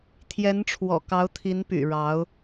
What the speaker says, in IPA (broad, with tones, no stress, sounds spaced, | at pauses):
t̪ʰ j ɛ˧˥ n ʈ͡ʂʰ w ɔ̰˨˩ k ɑ˧˥ ʊ̯ t̪ʰ i˧˥ n p y̰˨˩ ɻ ɑ˧˥ ʊ̯